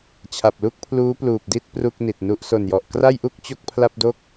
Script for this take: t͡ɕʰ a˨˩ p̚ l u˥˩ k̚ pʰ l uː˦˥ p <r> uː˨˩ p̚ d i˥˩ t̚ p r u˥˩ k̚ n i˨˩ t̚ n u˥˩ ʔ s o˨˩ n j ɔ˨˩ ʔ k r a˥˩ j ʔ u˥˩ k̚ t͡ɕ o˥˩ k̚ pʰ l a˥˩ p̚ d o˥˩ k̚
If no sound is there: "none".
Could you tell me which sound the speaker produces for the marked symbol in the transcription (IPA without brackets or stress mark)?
l